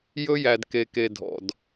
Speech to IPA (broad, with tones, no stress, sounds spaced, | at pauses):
j ɵ˦ j æ˨ d k e˨ k e˨ dʱ ɔ̰˨ d